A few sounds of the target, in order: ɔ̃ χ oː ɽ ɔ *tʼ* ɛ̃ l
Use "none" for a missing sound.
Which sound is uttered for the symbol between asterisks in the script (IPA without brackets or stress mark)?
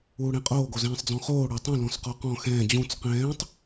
tˤ